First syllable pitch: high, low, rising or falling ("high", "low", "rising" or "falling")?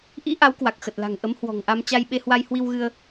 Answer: rising